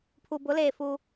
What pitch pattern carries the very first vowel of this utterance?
low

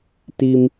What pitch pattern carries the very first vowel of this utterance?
low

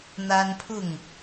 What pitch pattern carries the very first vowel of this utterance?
high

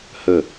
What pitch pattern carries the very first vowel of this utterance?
falling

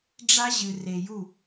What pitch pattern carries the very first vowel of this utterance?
high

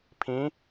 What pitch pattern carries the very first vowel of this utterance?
rising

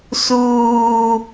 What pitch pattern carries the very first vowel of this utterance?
low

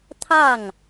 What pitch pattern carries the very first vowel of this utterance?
falling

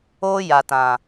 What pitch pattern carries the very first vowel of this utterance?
high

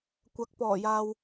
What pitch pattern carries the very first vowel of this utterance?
rising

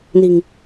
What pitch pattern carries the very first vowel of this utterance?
low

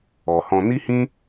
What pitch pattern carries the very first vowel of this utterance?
low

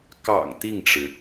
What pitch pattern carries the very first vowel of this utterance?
low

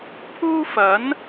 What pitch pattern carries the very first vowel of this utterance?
high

